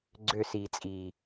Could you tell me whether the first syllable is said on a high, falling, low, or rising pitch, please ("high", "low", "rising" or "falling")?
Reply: falling